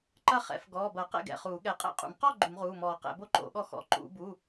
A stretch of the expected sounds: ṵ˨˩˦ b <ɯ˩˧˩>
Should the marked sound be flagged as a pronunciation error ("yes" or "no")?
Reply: yes